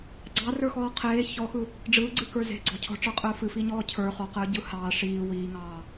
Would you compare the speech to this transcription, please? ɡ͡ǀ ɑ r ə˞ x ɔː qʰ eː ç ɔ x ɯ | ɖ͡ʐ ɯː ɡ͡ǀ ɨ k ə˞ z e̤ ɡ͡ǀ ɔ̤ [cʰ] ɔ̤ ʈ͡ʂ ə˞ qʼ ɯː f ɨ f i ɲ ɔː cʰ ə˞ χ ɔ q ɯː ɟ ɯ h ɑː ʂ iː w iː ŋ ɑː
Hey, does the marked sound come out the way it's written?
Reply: yes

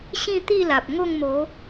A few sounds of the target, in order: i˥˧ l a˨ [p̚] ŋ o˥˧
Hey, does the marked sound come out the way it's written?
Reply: yes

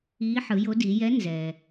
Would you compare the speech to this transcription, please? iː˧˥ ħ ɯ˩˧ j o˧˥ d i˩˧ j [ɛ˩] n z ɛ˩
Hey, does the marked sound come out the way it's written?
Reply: no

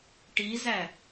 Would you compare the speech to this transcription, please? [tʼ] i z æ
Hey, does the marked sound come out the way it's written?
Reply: no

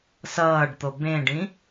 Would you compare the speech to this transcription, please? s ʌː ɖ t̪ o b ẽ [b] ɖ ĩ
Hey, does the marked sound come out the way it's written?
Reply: no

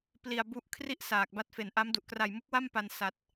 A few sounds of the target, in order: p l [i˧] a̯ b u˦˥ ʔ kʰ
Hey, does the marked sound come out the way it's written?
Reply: yes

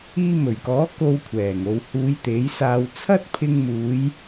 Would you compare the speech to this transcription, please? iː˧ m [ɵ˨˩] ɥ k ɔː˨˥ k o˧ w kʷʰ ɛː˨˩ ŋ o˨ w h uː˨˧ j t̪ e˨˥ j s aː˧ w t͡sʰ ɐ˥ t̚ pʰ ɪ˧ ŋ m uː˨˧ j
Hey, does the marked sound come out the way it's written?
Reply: yes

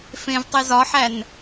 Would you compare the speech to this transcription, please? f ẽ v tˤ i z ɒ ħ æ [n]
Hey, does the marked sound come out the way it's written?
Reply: yes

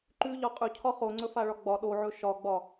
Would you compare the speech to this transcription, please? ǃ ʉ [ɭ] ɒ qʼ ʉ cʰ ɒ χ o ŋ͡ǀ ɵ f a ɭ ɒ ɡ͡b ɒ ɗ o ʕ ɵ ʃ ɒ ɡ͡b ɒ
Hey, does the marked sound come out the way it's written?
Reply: no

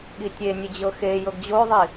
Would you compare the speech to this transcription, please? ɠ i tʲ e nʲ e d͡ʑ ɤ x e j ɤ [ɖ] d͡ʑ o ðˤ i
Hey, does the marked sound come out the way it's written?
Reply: no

